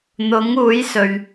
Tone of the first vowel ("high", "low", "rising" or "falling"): rising